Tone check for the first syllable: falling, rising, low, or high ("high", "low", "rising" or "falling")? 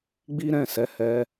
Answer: high